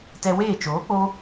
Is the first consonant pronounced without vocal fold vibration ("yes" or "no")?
yes